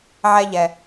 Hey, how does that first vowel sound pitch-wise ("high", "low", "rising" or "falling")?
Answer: high